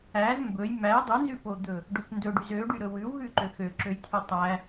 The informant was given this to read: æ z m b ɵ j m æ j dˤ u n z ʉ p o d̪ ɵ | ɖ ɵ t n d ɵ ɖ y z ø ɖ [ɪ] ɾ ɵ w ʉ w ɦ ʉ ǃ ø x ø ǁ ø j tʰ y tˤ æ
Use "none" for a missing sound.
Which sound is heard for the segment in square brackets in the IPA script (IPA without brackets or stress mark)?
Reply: y